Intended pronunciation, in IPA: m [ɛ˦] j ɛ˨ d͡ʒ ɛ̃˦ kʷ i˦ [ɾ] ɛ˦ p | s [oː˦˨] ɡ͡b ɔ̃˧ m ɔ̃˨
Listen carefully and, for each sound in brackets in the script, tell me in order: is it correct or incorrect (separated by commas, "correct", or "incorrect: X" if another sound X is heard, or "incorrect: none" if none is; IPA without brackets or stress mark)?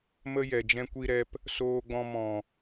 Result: incorrect: ə˦, correct, incorrect: oː˧